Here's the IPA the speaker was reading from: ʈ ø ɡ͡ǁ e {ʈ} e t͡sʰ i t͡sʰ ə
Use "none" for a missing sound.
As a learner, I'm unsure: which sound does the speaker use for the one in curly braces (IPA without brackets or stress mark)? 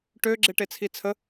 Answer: ʈ